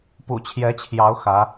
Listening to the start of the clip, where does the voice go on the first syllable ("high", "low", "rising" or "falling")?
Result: low